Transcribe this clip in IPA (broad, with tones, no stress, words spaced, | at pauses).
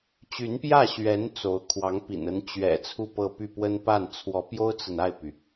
t͡ɕy˧˥npjä˥˩ɕɥɛ˧˥n t͡so˧˥ʊ̯ kʰwɑ˧˥ŋpḭ˨˩nə˧˥n t͡ɕɥɛ̰˨˩ t͡sʰu˥˧pɤ˥˧py˥˩pwə˥n pa˥˩nt͡sʰwɔ˧˥pjo˥ʊ̯t͡sə˨n a˥˩ɪ̯py˩